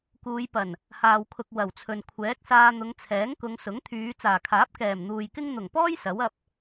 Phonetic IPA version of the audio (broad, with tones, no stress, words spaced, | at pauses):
kuː˨˧j pɐ˨˩n | haː˨wkʰʊ˨k̚ wɐ˨˩wt͡sʰɵ˨n kʷʰɛː˨˥k̚saː˧n̪ʊ˨˧ŋ t͡sʰɛː˨˥ŋkʊ˨˧ŋsʊ˨˥ŋ t̪ʰyː˨˧ t͡saː˨˩kʰaː˨˥p̚ kɛː˨˩mn̪uː˨jkɪ˥ŋ n̪ʊ˨˩ŋpɔː˥j sɐ˨˥wɐ˧p̚